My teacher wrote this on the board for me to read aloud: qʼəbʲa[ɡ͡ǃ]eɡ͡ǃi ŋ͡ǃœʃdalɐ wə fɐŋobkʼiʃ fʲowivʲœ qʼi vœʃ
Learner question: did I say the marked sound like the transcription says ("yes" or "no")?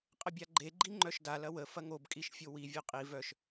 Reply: yes